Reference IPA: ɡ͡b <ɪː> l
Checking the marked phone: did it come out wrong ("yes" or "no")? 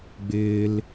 no